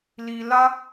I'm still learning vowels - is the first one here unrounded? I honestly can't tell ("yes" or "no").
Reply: yes